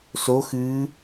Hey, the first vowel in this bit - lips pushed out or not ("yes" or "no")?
yes